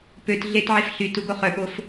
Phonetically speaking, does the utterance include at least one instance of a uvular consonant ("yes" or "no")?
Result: yes